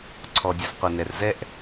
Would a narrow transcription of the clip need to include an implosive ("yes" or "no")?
no